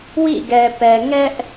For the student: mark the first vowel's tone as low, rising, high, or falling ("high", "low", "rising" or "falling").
falling